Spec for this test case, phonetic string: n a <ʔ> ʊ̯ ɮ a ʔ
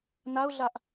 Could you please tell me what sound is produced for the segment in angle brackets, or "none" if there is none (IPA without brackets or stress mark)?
none